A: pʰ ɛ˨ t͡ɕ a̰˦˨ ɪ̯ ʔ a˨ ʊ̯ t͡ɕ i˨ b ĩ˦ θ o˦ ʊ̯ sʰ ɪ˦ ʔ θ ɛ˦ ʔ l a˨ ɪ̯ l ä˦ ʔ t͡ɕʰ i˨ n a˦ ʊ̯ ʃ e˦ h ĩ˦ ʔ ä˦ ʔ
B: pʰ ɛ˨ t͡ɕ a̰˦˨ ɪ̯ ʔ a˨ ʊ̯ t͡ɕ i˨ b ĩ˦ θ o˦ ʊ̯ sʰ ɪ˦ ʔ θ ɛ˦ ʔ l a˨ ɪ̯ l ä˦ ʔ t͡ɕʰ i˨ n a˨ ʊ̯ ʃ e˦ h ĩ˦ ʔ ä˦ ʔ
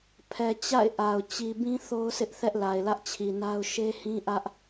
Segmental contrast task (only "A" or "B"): A